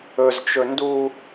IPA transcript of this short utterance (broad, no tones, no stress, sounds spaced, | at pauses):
ɵ z t͡ʃ ɵ n d u